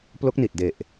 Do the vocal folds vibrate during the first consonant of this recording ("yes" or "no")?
no